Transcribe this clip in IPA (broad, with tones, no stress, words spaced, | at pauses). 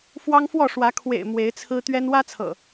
fwɑ˦ŋfwɔ˥˨ʂwä˨˦ kʰwḛ˨˩ɪ̯ mwe˨˦ɪ̯t͡sʰɹ̩˦ t̪ɥɛ˦n wä˦t͡sʰɤ̰˨˩